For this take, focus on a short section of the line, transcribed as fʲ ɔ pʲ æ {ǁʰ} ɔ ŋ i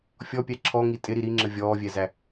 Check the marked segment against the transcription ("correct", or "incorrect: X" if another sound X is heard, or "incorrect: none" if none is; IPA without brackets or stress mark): correct